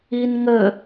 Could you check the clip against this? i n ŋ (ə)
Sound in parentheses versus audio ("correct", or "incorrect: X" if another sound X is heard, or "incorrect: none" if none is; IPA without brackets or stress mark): correct